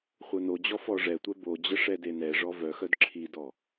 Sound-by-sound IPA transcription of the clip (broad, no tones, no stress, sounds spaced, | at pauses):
χʷ œ n o d͡ʑ ɔ f ɔ ʐ ɛ tʷ ɛ b o d͡ʑ ə ʂ ɛ d e n ɛ ʐ ɔ v œ x œ d ǁʰ i d ɔ